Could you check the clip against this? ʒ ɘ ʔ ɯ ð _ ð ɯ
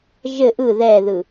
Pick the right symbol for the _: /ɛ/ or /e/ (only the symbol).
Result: ɛ